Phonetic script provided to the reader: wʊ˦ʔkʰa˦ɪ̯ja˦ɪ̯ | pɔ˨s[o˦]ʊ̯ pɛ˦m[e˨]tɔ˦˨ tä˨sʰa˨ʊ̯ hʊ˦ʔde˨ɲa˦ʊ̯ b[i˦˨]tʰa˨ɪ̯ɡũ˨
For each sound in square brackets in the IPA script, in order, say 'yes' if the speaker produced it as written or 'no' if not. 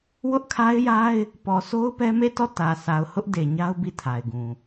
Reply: yes, no, yes

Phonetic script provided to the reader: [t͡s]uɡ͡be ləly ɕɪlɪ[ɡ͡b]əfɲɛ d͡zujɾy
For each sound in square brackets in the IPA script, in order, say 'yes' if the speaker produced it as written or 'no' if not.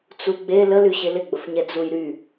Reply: yes, yes

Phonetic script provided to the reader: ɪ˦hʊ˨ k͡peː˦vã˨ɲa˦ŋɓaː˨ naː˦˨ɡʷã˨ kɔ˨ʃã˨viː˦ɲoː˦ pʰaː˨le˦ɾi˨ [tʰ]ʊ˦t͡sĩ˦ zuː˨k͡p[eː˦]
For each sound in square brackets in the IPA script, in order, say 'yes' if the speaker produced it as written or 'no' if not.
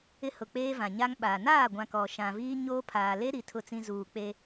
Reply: yes, no

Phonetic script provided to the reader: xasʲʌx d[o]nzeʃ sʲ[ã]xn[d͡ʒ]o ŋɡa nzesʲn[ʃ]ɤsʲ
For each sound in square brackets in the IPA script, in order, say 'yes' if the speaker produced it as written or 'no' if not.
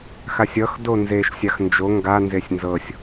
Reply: yes, no, yes, no

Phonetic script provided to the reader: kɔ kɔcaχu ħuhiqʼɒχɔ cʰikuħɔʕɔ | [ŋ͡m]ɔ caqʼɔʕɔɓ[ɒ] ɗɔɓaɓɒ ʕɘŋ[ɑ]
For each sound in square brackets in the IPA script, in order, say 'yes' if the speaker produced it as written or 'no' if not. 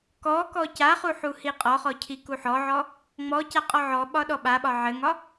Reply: yes, yes, no

